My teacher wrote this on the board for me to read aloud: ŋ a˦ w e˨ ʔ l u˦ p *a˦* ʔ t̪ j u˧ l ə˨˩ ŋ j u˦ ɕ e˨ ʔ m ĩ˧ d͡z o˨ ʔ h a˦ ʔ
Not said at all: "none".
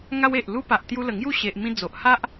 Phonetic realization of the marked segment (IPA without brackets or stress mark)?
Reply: a˨